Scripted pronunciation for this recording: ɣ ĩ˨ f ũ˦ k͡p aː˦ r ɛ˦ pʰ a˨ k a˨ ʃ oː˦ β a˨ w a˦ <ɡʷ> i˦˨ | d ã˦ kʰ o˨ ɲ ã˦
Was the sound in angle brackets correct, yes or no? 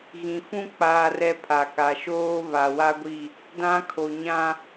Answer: yes